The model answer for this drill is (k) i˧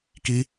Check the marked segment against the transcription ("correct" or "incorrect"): correct